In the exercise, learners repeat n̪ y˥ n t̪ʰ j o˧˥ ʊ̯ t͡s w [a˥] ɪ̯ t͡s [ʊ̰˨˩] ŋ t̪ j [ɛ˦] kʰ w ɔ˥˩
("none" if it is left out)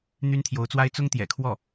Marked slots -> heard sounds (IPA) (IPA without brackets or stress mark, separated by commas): a˥, ʊ˥, ɛ̰˨˩